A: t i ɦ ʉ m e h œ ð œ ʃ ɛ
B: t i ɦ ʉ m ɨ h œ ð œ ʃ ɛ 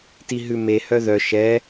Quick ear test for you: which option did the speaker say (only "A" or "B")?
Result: A